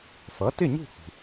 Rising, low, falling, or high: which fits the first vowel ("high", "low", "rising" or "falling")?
rising